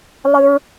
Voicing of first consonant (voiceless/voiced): voiced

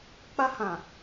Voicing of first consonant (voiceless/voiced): voiceless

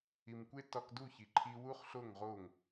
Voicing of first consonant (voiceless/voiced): voiced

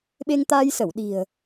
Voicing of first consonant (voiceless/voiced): voiced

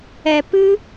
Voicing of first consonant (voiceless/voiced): voiceless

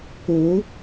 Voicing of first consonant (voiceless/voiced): voiceless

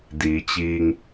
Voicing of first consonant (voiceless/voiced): voiced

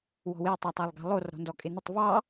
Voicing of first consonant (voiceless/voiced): voiced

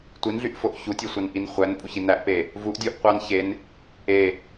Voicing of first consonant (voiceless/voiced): voiceless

